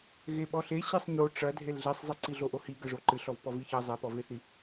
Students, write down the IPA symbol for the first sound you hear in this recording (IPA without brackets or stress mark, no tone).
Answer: ɣ